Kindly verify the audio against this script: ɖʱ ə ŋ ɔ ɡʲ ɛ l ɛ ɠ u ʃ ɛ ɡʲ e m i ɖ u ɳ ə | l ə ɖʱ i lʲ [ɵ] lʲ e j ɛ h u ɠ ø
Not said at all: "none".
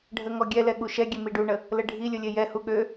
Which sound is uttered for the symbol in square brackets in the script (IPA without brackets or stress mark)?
ɵ